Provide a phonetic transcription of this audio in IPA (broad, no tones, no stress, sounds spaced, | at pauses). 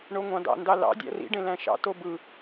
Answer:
ɳ o ŋʷ ɑ̃ d ɑ̰ n d ɑ l ɑ̰ dʲ æ̰ r ḭ ɖ ẽ l æ̃ ʃ ɑ̰ t o b ɯ